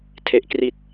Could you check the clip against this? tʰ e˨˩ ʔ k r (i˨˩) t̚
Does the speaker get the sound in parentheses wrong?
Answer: no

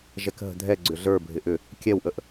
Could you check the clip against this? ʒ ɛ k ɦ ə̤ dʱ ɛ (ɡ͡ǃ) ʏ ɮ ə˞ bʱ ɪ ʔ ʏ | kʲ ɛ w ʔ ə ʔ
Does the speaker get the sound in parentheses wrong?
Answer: yes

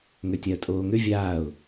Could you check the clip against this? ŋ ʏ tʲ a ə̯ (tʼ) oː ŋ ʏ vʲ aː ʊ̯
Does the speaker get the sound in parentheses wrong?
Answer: no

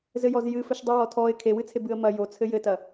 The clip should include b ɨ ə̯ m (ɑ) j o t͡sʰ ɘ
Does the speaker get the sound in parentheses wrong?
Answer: yes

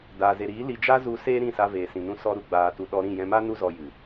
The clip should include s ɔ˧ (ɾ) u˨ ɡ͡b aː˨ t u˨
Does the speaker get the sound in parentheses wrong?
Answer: no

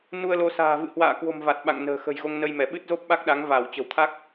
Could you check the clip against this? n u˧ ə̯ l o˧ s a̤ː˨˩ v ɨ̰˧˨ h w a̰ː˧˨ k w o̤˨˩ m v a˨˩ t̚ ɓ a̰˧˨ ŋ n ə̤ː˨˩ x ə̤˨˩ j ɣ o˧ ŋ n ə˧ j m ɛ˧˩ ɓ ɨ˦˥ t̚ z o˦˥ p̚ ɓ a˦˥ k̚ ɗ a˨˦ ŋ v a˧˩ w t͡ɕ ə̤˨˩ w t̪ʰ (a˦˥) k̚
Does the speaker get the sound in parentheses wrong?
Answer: no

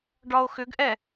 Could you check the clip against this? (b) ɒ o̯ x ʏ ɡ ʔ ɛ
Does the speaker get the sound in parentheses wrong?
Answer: yes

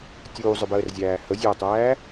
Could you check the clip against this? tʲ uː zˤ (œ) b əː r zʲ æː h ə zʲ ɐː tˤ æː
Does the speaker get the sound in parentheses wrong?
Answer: no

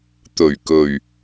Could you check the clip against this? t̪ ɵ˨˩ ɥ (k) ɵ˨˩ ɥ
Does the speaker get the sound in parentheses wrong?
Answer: no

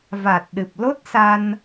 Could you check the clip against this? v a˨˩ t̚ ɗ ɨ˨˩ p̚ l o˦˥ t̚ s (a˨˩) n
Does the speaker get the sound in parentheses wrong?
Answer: yes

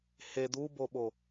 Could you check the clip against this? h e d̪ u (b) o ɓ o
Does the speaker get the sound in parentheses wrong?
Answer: no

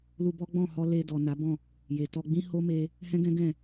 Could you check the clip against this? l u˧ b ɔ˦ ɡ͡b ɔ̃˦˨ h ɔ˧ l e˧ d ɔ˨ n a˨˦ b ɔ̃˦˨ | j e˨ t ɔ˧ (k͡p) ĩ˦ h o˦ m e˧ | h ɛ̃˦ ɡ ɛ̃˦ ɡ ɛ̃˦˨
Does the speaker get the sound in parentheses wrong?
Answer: yes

